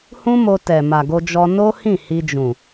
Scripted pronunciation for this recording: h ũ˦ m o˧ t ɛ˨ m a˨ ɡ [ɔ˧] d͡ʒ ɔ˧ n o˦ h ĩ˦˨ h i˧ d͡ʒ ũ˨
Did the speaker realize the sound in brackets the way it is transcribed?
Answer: no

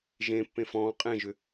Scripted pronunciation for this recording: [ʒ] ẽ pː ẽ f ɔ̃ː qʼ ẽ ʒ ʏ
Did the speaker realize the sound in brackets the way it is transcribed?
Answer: yes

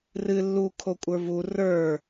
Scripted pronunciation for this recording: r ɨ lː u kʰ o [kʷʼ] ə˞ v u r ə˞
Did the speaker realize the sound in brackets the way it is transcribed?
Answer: yes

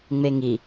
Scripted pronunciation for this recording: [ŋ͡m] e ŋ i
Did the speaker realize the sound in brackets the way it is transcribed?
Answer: yes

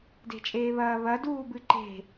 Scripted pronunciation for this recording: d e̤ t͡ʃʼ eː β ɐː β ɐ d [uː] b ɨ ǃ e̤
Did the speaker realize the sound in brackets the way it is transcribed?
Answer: yes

